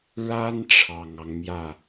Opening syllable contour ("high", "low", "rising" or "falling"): high